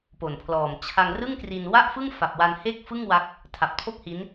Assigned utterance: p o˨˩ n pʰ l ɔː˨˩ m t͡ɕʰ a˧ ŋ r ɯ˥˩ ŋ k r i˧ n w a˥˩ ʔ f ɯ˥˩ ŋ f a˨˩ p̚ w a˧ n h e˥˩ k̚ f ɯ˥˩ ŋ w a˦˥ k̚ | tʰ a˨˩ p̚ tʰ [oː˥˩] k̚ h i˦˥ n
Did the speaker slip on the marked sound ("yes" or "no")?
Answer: yes